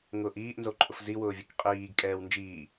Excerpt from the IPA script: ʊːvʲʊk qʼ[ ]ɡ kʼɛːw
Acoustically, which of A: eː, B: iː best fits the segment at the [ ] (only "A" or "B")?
B